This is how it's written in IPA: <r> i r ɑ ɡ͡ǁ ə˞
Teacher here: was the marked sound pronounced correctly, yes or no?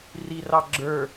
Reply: yes